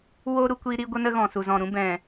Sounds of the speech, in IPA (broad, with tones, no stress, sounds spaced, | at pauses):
w oː˦ ɾ u˧ kʷ iː˧ ɾ i˦ ɡʷ ə˦ n ə˦ ɣ ɔ̃˨ s u˨ z ɔ̃˨ ɾ ũ˦ b ɛ̃˨